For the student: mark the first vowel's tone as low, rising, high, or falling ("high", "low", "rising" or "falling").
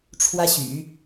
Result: high